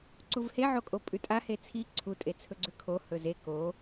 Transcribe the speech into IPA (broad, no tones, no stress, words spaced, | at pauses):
ǀuvheʕokʼo pʼʉtʼahe t͡sʰi ǀʰutʼet͡sʰɵɡ͡ǀʉ kʰo hɵze ko